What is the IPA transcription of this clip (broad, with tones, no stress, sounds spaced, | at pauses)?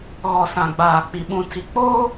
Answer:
ɣ ɔ˨ s ã˨ ɡ͡b aː˨ k͡p i˨ ɓ ũ˨ tʰ i˨ k͡p oː˦